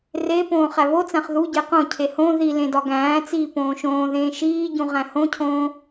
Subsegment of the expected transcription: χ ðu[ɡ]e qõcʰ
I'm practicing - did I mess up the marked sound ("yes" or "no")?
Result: yes